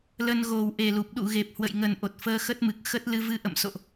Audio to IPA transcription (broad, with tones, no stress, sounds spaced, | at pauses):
l ə˧ n ɣ o˨˩ w ʔ e˨˩ l u˨˩ p̚ ɗ ṵ˧˨ ɣ e˨˩ p̚ h w ə̰˧˨ j ŋ ə˨˩ n ʔ o˨˩ t̚ f əː˧ x ə˦˥ t̚ m ɨ˨˩ k̚ x ə˦˥ t̚ l ɨ˧ v ɨ˧ ʔ ə̰˧˨ m s o̰˧˨ ʔ